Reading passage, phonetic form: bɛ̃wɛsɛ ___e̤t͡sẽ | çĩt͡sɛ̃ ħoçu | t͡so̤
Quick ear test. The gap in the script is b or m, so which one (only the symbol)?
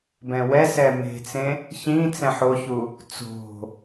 m